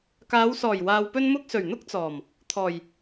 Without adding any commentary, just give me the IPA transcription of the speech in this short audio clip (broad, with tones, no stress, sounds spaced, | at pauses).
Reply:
k aː˨˧ w s ɔː˨˩ j w aː˧ w p ɵ˥ n m ʊ˥ k̚ s ɵ˨˩ ɥ n̪ ʊ˥ k̚ t͡s ɔː˨˩ m | t̪ʰ ɔː˨˩ j